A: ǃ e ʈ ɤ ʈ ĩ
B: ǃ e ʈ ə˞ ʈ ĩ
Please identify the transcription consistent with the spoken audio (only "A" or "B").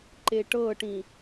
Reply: A